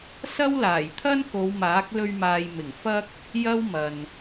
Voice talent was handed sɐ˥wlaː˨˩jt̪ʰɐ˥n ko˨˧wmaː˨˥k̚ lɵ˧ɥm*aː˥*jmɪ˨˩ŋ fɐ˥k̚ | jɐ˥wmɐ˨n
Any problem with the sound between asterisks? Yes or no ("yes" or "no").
yes